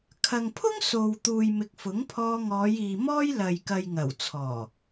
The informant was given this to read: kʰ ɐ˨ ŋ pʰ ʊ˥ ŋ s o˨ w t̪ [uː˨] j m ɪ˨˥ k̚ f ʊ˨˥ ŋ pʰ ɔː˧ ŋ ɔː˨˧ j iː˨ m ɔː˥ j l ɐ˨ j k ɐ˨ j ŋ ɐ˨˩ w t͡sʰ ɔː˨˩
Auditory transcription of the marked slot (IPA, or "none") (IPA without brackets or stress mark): uː˨